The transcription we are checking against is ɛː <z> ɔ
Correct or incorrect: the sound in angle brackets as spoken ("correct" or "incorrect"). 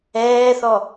incorrect